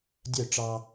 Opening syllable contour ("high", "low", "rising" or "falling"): falling